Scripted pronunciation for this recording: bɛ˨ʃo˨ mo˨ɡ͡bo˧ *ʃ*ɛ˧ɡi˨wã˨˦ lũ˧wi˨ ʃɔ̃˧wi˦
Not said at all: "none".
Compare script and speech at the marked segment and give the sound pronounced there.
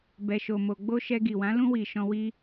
ʃ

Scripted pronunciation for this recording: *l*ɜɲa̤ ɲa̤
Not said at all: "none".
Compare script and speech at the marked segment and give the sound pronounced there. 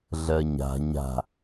ɮ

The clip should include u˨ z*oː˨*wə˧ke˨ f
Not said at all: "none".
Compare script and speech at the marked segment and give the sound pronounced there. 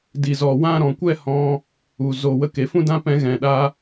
oː˨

